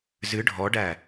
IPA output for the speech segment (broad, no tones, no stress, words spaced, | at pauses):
zɨ ɖʱɔɖæ